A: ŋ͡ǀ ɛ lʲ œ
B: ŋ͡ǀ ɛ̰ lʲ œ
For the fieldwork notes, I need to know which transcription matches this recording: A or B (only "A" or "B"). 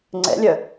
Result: B